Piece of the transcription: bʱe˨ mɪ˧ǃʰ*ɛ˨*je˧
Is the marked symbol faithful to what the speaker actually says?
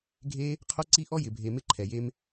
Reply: yes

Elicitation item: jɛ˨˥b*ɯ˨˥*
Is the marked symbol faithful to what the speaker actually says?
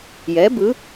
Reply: yes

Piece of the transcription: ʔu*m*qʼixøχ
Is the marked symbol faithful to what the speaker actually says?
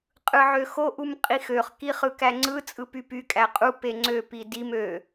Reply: yes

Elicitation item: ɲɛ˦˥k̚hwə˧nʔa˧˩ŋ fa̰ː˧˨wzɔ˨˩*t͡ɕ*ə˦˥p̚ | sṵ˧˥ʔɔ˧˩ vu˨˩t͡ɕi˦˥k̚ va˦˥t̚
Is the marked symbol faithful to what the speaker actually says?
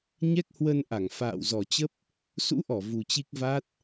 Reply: yes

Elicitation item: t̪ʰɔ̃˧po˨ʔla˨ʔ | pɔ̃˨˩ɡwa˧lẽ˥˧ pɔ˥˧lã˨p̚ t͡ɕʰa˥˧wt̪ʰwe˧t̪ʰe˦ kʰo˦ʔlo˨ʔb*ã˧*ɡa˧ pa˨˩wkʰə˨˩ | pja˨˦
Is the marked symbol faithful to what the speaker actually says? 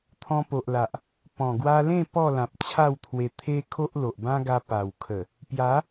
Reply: no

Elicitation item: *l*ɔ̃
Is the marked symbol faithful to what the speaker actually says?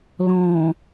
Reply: yes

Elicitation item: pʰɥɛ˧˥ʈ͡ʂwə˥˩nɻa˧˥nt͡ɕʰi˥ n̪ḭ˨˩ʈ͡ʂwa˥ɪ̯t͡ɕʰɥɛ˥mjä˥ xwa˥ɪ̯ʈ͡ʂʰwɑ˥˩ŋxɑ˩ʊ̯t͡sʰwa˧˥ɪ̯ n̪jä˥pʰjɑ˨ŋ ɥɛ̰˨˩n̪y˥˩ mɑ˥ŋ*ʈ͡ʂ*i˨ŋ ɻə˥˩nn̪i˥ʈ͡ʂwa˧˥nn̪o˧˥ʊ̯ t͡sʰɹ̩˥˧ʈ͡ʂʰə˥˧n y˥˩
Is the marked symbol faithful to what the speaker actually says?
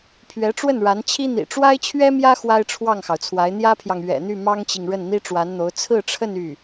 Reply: no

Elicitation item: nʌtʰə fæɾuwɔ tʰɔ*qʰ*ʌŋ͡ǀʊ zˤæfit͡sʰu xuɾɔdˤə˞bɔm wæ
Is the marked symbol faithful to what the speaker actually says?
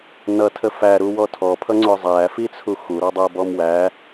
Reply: no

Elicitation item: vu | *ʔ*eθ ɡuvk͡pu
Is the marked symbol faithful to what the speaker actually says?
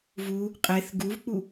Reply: no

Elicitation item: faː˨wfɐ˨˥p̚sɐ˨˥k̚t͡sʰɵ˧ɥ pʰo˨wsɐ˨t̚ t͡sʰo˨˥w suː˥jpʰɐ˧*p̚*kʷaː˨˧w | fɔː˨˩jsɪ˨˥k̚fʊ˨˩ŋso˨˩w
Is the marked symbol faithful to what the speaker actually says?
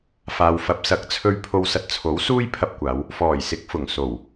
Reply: yes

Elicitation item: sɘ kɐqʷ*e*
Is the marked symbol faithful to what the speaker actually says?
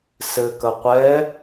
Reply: no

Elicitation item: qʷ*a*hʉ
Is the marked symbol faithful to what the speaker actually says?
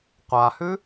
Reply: yes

